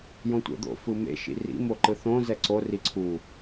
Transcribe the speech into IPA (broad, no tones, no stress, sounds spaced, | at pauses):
j õ tʷ ɛ̰ d̪ o̰ f ɯ m ḛ ʃ ḭ r ḭ m o ǃ ɯ θ õ z ɛ ǀ o r i ǀʰ u